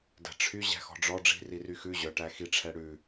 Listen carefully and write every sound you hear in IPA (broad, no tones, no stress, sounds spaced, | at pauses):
d æ̤ ʈ͡ʂʰ y ʑ æ̤ x ɔ̤ ɖ͡ʐ ɔ ɖ͡ʐ i̤ r i r y x ʉ ʑ œ ʈ æ x i ʈ͡ʂʰ ɛ ɽ ʉ